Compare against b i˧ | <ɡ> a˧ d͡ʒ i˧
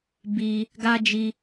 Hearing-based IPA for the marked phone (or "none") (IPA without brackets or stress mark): ɡ